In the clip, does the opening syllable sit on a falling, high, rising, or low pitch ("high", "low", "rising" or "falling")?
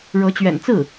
rising